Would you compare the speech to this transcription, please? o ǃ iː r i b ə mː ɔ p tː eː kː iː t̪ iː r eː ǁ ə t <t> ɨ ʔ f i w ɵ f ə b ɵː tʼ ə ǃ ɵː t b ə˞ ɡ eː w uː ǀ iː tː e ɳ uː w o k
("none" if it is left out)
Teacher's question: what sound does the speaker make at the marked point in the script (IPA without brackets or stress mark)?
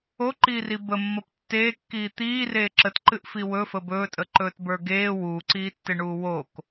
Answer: ǃ